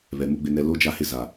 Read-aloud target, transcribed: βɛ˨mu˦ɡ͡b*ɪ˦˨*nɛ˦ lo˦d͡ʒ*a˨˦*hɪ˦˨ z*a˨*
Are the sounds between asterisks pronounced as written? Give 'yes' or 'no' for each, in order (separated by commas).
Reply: no, no, yes